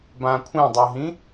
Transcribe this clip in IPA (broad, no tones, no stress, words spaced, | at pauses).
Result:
bãkʷʰĩdˤuɦĩ